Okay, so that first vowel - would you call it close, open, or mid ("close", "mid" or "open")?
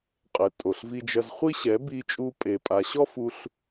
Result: mid